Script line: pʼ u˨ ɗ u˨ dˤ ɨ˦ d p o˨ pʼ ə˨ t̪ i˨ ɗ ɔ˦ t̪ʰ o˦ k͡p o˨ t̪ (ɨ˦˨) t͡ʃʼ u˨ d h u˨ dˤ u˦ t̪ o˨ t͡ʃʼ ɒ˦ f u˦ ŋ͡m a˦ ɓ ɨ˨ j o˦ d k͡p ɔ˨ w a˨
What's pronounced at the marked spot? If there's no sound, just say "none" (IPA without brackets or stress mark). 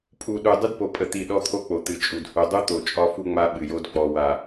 ɨ˨